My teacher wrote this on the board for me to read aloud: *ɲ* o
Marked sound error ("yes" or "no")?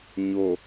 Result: no